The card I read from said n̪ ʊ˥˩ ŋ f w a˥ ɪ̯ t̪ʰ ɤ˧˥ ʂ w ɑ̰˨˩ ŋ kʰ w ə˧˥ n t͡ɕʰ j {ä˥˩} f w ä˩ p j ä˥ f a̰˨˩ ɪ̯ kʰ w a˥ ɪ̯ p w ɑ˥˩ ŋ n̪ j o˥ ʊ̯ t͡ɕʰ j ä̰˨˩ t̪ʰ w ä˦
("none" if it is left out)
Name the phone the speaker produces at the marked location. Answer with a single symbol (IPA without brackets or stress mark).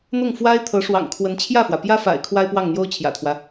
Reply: ä˥˩